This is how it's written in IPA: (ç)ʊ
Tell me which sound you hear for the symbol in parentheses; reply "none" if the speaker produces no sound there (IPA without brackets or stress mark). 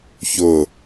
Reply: ç